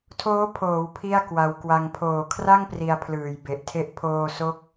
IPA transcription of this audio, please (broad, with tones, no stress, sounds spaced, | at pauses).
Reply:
tʰ oː˦˥ pʰ oː˩˦ w pʰ i˥˩ a̯ k w a˧ w k w a˧ ŋ pʰ oː˨˩ kʰ r a˥˩ ŋ p r i˧ a̯ pʰ l ɯː˨˩ j b e˨˩ ʔ tʰ e˦˥ ʔ pʰ oː˧ s o˦˥ k̚